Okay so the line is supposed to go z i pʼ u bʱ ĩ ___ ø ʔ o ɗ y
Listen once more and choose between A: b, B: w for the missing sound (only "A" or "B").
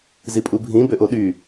A